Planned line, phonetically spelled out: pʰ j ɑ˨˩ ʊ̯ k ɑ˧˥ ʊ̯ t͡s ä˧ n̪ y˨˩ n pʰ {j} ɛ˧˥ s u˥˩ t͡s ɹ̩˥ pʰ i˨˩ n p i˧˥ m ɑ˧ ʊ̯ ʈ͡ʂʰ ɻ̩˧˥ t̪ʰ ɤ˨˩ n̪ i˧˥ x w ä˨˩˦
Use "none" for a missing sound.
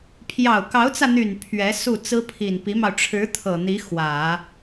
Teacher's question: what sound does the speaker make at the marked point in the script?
ɥ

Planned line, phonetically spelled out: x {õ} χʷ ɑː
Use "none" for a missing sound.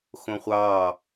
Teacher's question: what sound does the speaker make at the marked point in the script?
õ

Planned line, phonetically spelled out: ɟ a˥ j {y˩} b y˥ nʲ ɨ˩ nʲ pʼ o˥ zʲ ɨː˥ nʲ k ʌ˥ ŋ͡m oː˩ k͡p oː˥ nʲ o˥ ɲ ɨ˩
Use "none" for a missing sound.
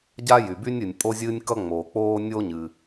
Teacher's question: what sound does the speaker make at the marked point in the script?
y˩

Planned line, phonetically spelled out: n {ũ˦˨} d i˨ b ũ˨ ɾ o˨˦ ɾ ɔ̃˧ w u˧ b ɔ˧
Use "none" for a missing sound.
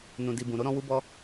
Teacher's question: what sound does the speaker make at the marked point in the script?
ũ˨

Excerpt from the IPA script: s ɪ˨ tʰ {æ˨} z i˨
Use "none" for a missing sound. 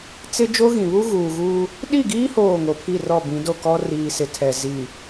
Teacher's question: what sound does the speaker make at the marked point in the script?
ɛ˨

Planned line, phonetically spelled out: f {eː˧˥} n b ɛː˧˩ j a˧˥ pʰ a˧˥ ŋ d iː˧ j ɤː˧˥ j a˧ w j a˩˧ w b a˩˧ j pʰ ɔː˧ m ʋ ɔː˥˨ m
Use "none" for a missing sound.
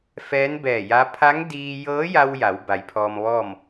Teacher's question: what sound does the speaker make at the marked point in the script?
ɛː˧˥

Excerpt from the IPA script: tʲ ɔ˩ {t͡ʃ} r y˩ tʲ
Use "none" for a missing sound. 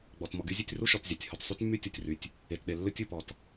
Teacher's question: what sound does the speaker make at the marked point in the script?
tʲ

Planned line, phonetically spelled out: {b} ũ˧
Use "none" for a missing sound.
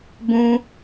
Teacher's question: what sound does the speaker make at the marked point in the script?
b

